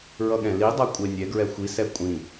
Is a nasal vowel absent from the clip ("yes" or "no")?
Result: no